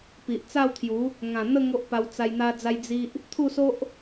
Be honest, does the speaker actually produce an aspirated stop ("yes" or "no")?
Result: yes